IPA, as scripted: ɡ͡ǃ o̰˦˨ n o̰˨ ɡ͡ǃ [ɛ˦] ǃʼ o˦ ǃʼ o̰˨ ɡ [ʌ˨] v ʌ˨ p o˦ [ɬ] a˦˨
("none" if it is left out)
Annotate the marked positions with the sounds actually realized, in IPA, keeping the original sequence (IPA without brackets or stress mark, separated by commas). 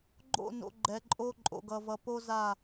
ɛ˨, ʌ˨, z